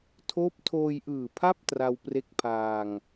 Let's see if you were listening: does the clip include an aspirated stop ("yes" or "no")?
yes